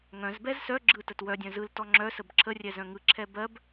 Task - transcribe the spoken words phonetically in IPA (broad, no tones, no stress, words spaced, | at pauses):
ŋœ̃zbɛz sœ ɡ͡ǁɯtət wœdʲœ̃ zɯl tɔŋ͡ǁœsəb ǁʰərʲɛ zœ̃ŋɯǁʰɛ bɜb